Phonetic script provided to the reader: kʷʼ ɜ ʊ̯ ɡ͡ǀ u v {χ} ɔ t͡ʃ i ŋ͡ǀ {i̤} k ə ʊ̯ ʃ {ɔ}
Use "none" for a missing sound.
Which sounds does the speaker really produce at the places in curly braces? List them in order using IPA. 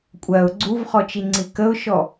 χ, i, ɔ

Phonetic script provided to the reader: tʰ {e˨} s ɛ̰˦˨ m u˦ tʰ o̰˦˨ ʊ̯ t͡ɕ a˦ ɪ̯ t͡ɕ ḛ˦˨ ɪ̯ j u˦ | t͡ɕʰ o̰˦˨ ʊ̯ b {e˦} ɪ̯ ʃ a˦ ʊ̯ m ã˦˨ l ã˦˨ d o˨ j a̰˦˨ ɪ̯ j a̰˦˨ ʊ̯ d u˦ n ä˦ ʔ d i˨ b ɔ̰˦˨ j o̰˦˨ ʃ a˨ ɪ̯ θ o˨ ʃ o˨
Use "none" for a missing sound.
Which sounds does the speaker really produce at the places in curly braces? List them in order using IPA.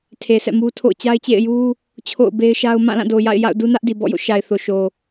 e˨, e˦

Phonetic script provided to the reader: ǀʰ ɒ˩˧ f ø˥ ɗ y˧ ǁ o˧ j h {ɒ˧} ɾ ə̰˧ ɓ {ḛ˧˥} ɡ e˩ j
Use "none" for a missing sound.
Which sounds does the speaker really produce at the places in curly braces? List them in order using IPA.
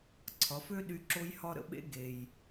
ɒ˧, ḛ˧˥

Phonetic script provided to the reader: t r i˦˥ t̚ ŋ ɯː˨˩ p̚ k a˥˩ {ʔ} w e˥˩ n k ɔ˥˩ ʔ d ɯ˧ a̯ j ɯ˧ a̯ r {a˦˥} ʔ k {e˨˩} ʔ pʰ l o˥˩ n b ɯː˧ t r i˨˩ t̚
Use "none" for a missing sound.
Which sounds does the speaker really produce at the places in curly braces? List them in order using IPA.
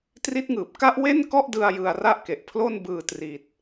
ʔ, a˥˩, e˨˩

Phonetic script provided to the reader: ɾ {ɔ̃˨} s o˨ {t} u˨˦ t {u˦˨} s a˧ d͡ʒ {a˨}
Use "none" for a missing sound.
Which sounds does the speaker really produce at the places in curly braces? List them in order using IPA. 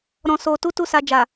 ɔ̃˨, t, u˦, a˨

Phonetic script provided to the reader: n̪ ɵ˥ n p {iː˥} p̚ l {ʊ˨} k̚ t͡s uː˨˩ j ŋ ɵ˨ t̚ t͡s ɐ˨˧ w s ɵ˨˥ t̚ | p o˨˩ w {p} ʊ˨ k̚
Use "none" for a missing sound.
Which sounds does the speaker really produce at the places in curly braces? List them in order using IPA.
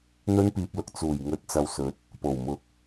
iː˧, ʊ˨, m

